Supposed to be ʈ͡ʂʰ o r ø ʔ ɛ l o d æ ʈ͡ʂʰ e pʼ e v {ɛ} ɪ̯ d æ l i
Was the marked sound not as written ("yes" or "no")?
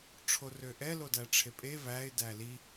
yes